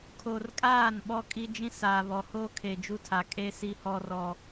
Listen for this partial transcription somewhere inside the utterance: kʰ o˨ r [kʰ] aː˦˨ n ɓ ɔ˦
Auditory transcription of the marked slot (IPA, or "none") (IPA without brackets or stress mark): kʼ